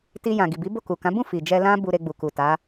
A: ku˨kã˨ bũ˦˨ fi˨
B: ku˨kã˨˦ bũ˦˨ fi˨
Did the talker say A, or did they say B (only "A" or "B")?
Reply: B